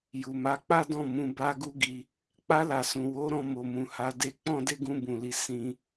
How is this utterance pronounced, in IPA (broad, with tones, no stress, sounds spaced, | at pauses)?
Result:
j u˨ m a˨˦ k͡p a˦ d ɔ̃˦˨ m ũ˧ b a˦ ɡ u˦ ɡ i˧ | k͡p a˧ l a˨ s ũ˨ w o˨˦ ɾ ɔ̃˧ m o˨ m ũ˨ h a˨˦ d e˧ k͡p ɔ̃˦ d e˦ ɡ ũ˧ b ũ˨ l i˧ s ĩ˧